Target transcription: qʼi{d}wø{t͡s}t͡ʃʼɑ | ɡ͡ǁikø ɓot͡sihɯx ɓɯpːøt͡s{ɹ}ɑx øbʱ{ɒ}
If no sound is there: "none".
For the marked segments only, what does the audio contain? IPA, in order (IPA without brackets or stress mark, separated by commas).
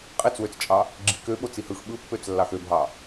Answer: t͡s, t͡s, lː, ɑ